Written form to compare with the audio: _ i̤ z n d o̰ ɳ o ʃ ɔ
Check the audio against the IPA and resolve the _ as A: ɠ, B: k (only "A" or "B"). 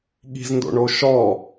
A